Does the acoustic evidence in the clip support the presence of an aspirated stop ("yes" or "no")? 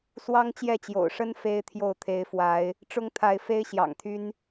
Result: yes